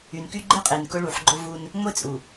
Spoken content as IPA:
y˨nky˦ ɡ͡ǃe˦qʼe˨n kʊ˦ɭu˨ħɡ͡ǃʊ˦vu˦n | ŋʷe˦t͡sʼu˨

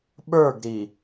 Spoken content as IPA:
ɓə˞ɡɾi

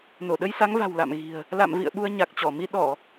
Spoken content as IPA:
no˧˩ɗə˧jsa˨˦ŋva̤˨˩w la̰˧˨mɣi̤˨˩ə̯ | la̰˧˨mvḭ˧˨ə̯ ɓu˧ə̯ɲa˨˩k̚t͡ɕɔ˧˩mi˧ ɗɔ˧˩˨

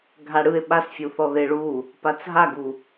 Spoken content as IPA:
ɡʱaɽɯe̯ ɓasfʲuθɔ ðeɭu | pat͡sɦaɡu

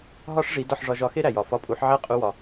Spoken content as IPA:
ɦɒ˥ʂʐi˩˥ dɒ˥˩ħʐɒ˧ʒɒ˧ xe˥ɾæ˩jɒ˩ fɒ˧pʼu˩˥ħ ʕæ˥qʼu˧wɒ˩

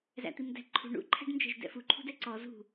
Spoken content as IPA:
zæ̰t̪imdæ̤ǃʰṳ ɳṵ ǃʰæ̤ɖnd͡ʒɛ̤ʒdɛ̰fu ǃʰṳdɛǀɔ zṳ

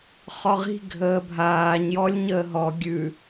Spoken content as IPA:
χɔʁi̤ ɡʱəːbʱaːɲ jɔlʲɲəːɦɔ ɡʲʉ

